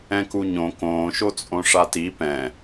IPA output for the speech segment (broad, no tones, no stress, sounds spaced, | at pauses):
ɛ̃ k u ɲ õ k õː ʃ o t͡sʼ õ ʂ a t i p ɛ̃